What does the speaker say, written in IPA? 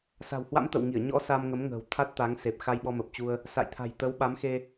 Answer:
s a̤˨˩ w h w a̰˧˥ m t̪ ə̰˧˨ w ŋ i˧˩ ə̯ ɲ ɔ̰˧˥ s a˧ m ŋ ə˨˦ m ŋ ə̤ː˨˩ w t̪ʰ a˦˥ t̚ t̪ a˨˦ ŋ s e˨˩ p̚ x a˧ j ɓ ɔ˧ m ə˨˩ p̚ t͡ɕ u˧ ə̯ | s a̰˧˨ j t̪ʰ a̤˨˩ j t̪ ə˨˦ w ɓ a˨˦ m x e˧

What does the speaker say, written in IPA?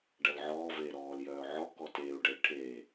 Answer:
ɖ ɐ l ʕ ɔː v eː ɾ ɔː l j œː ʕ ɔ k ɔ t eː u̯ ɖ ə i̯ ʈʰ eː

